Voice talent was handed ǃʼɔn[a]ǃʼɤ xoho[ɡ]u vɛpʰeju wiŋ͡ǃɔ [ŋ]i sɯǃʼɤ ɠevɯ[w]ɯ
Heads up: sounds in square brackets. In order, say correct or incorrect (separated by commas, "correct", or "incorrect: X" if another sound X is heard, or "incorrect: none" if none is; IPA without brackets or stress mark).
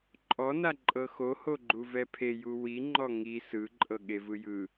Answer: correct, incorrect: ɡ͡ǃ, correct, incorrect: j